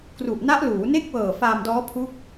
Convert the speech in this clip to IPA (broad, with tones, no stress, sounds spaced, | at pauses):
k r u˨˩ ʔ n a˦˥ ʔ l uː˩˦ n e˥˩ k̚ w ɤː˨˩ f aː˧ m d ɔː˦˥ pʰ u˦˥ k̚